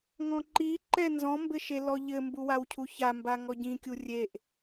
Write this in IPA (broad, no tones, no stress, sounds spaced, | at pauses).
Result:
ŋ ɔ̃ ǃ i ǃ ɛ n z ɔ̃ m b ɘ ʃ e l ɔ ʎ ɘ m b u w a w cʰ u ç a m b a ŋ ɔ ɟ ĩ kʲ u rʲ e ʔ